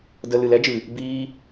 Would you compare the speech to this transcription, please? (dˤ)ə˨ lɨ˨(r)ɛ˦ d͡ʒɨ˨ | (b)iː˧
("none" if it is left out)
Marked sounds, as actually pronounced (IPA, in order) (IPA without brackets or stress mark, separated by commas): d, l, b